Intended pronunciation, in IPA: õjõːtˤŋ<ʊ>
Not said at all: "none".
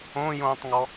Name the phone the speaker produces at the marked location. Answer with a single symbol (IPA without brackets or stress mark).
ɔ